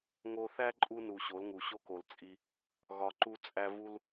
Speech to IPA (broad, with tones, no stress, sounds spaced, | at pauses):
ŋ o˧ θ æ˦ ǃʼ u˧ n u˨ ɕ o˨˦ l ŋ u˨ ɕ o˦ k o˨ l t͡sʼ i˧ | ɣ ɒ˧ ǃ u˧ t͡sʼ æ˧ v u˦ l